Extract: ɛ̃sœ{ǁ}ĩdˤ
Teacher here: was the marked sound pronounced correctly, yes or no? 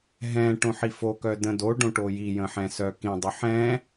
no